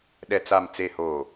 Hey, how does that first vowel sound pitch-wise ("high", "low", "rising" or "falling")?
low